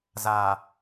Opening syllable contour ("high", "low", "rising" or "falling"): low